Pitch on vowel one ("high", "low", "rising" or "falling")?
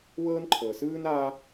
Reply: high